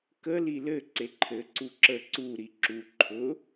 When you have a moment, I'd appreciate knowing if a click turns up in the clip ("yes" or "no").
yes